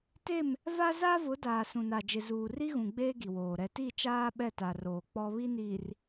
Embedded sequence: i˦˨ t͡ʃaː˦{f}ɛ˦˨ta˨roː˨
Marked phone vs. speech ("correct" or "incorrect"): incorrect